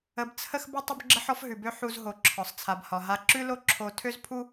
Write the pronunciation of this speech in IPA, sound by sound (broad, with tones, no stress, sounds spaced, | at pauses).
ə˧ b t͡sʰ ə˥ x b ə˥ tˤ ə˥ b ɡ͡ǁ ə˥ ħ ɔ˥ f ɦ ʉ˩ b ø˥ ħ u˧ z ɦ o˩ ǁʰ ɒ˩ sˤ t͡sʰ a˩ b h ɒ˩ ɦ a˧ ǁ ʉ˥ l o˥ ǁʰ o˧ tʰ ø˥ z pʰ u˥